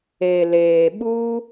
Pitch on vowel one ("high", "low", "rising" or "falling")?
low